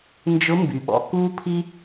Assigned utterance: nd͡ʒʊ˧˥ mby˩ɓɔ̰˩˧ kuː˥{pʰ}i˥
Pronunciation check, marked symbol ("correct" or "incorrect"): correct